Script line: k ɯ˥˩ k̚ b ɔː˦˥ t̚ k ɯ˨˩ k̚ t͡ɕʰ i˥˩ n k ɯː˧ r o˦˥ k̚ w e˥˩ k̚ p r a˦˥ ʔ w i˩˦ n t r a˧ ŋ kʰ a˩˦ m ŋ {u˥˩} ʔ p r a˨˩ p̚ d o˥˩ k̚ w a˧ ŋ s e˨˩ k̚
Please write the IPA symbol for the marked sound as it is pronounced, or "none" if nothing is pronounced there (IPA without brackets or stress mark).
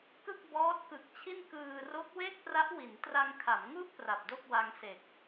u˥˩